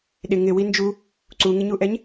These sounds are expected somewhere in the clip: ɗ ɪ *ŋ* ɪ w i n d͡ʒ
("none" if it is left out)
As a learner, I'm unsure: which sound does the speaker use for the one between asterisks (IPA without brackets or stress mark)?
ŋ